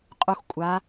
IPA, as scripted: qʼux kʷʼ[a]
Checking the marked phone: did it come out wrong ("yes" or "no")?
no